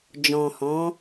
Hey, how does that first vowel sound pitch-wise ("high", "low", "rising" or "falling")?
low